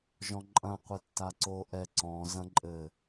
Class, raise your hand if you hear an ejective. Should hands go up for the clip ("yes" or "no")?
yes